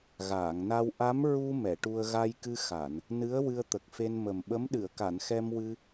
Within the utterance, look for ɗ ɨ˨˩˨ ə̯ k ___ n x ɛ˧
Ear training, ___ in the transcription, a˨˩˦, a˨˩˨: a˨˩˨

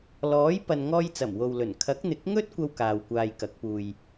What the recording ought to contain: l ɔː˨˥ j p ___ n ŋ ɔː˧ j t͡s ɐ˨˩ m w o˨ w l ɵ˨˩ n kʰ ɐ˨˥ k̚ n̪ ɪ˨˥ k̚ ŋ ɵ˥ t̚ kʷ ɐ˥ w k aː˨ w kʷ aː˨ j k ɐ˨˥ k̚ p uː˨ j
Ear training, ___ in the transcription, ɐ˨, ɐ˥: ɐ˨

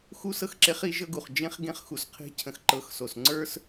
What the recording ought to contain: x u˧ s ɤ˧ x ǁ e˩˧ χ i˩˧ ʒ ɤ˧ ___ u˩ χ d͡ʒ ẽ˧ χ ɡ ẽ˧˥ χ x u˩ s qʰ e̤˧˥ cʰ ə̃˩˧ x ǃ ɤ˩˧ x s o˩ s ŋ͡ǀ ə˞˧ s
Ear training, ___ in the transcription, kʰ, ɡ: ɡ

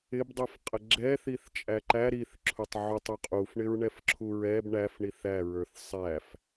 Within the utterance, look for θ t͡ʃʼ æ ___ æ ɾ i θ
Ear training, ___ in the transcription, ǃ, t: ǃ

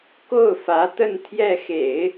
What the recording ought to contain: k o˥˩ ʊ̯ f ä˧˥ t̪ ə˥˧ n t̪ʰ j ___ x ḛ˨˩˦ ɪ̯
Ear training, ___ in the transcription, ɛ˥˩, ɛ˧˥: ɛ˥˩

